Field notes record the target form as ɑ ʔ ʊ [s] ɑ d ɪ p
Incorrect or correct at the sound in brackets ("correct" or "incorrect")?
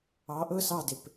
correct